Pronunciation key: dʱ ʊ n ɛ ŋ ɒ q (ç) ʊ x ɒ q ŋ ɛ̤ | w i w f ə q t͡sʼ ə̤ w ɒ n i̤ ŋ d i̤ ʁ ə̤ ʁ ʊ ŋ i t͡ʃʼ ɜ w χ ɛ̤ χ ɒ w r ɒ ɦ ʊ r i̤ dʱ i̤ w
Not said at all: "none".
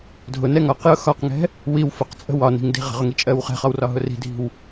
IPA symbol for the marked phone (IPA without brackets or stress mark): j